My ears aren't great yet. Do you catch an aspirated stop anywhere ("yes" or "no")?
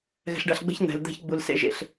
no